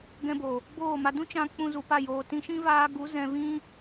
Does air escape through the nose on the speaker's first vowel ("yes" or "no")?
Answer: yes